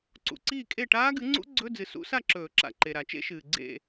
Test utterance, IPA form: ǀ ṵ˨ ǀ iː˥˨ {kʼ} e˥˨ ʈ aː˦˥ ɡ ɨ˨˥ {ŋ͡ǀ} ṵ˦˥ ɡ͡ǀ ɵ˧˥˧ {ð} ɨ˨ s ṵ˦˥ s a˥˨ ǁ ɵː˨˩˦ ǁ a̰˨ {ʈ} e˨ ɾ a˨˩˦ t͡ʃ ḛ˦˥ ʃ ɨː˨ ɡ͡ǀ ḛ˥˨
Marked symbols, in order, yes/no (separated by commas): yes, yes, no, no